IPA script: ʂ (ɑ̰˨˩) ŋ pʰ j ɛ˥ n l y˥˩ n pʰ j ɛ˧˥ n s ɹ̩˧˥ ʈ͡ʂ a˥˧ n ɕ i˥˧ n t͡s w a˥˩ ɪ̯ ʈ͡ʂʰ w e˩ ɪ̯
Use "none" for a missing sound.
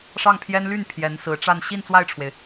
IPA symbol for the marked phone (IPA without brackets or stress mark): ɑ˥˩